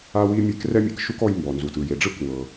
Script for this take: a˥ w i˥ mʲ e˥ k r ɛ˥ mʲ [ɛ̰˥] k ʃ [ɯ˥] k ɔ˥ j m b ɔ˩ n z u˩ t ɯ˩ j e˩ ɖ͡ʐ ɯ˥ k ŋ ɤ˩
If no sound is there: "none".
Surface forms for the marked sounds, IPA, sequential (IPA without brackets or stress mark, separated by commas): ɛ̰˥, u˥